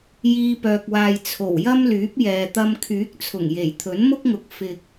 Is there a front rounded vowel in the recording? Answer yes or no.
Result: yes